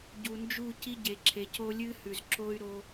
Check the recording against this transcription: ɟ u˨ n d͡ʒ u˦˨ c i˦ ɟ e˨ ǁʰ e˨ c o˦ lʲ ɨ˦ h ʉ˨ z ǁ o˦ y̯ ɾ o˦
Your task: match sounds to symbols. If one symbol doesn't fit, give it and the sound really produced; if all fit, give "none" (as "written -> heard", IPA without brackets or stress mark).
none